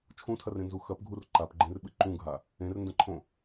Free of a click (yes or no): no